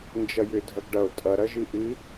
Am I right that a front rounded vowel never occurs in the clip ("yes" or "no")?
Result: no